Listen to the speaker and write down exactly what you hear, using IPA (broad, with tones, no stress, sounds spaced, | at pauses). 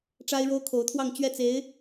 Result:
ʈ͡ʂ a˥ ɪ̯ ɻ o˥ ʊ̯ kʰ o˧˥ ʊ̯ t̪ʰ w ɑ˥˧ ŋ t͡ɕ ɥ ɛ˥˩ t͡s e˧˥ ɪ̯